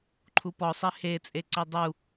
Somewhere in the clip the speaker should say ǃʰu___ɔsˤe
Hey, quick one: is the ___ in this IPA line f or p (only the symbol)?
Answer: p